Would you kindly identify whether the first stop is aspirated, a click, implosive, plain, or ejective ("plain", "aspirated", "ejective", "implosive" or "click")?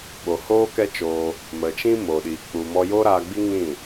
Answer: implosive